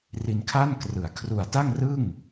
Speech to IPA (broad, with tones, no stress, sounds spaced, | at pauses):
r i˧ n kʰ a˥˩ n k r ɯ˨˩ a̯ kʰ r u˨˩ a̯ t a˥˩ ŋ r ɯ˥˩ ŋ